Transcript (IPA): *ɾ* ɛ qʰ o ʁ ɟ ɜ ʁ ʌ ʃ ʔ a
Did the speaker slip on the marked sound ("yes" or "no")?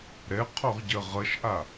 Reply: no